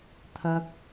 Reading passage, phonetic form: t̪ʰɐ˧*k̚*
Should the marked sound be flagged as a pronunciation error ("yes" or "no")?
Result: no